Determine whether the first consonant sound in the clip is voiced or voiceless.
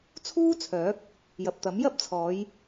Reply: voiceless